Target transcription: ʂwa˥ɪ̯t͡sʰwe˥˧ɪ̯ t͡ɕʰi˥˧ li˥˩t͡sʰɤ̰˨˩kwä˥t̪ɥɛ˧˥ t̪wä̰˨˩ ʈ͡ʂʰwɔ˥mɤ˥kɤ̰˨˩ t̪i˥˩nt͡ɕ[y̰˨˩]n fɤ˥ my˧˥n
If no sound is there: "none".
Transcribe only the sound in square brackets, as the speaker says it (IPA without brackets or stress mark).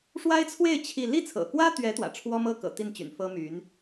y̰˨˩